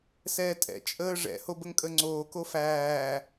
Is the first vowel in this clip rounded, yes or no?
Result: no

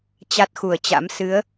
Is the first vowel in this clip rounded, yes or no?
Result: no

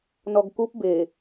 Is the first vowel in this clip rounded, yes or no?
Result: yes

